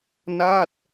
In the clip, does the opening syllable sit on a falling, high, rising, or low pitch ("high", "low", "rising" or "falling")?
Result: falling